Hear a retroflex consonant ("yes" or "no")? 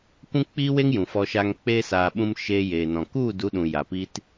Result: no